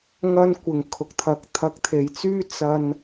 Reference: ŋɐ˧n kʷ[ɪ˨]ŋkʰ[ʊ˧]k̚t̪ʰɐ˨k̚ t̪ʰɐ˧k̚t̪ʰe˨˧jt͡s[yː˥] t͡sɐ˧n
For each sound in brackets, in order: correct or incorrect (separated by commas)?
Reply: correct, incorrect, correct